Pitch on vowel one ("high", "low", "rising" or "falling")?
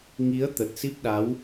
rising